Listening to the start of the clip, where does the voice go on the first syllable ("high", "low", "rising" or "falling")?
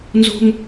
high